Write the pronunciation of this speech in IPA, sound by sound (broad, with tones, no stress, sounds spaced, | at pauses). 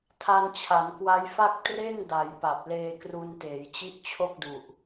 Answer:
tʰ a˧ n t͡ɕʰ a˩˦ n k w a˦˥ j f a˥˩ k̚ t r e˥˩ n d a˩˦ j p a˨˩ p̚ l eː˧ k r u˧ n t eː˩˦ j t͡ɕ i˥˩ ʔ t͡ɕʰ o˥˩ k̚ d u˨˩ ʔ